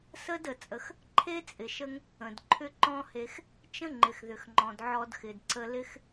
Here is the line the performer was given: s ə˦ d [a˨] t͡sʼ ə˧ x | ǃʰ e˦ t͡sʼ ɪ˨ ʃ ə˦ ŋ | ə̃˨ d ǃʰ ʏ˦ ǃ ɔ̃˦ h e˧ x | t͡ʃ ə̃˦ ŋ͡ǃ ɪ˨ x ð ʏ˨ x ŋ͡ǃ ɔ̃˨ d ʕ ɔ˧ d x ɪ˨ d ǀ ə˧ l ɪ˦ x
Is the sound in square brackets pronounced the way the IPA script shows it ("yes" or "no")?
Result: no